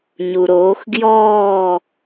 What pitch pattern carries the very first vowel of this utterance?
low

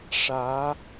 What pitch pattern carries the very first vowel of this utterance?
rising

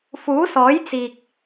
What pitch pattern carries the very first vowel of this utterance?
rising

